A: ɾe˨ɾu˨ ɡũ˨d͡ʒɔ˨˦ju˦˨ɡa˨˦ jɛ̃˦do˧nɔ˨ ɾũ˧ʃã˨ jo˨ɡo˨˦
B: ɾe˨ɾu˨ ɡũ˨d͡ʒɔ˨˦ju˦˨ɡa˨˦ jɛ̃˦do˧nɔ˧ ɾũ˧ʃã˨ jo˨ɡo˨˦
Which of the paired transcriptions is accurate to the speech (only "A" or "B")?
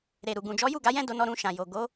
B